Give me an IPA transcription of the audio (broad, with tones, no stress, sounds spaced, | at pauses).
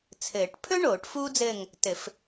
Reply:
t͡sʰ ɘː˨˩˦ ʈ pʰ ɵ˥ ɳ oː˨˩˦ ʈ f uː˥ d͡z ɘː˦˨ ŋ | t ɘ˨˩˦ f